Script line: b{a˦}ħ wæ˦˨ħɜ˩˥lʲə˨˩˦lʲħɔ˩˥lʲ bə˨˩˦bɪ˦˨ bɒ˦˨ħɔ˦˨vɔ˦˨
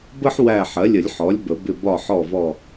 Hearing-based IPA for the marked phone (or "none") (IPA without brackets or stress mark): ə˦